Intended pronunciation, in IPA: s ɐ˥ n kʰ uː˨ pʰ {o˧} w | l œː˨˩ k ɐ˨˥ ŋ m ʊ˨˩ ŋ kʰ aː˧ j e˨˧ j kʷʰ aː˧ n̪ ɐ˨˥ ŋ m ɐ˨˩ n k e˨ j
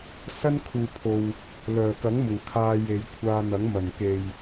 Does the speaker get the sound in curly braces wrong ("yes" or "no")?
yes